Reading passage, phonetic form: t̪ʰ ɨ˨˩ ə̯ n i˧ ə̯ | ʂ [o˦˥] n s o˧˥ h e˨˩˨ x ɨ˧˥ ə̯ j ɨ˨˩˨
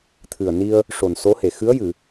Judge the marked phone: incorrect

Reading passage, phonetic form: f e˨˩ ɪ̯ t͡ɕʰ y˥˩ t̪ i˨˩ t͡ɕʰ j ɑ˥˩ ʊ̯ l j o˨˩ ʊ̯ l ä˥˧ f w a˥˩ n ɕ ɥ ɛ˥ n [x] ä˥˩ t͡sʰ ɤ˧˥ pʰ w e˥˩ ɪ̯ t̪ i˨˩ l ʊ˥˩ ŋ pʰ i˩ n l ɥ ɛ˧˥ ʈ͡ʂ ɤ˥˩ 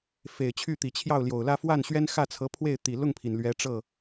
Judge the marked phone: correct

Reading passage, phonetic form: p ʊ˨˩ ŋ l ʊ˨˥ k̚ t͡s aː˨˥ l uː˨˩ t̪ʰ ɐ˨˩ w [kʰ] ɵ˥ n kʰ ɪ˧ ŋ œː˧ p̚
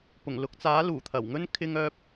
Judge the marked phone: incorrect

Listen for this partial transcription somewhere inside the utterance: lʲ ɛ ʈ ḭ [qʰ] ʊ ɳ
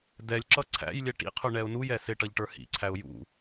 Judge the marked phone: correct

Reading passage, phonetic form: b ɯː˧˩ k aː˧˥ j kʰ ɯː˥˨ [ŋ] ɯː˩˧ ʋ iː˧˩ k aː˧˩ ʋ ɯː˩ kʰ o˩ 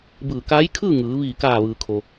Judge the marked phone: correct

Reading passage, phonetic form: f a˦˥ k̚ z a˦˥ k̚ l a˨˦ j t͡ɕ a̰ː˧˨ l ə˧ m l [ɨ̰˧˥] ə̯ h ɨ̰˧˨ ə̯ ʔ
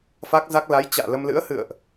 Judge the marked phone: correct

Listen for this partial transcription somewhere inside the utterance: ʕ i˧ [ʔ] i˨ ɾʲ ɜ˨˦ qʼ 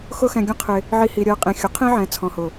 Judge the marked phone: incorrect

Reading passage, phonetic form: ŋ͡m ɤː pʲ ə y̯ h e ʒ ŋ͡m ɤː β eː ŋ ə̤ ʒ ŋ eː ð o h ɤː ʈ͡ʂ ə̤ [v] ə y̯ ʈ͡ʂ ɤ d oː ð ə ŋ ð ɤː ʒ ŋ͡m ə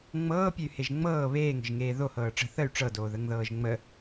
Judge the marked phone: incorrect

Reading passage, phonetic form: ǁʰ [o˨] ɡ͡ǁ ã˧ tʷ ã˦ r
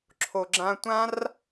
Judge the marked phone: correct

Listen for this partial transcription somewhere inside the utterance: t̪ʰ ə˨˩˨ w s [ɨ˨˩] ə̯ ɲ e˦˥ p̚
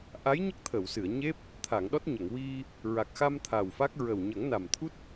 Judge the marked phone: incorrect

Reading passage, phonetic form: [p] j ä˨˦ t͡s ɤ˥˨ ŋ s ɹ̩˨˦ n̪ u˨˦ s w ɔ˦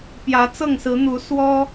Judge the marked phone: correct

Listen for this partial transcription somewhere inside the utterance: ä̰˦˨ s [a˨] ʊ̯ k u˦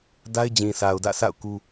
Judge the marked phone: incorrect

